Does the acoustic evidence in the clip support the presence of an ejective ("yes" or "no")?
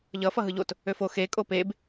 yes